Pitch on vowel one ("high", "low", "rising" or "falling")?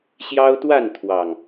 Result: high